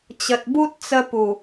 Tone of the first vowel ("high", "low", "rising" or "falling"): low